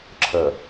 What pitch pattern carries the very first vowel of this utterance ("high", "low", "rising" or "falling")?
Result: low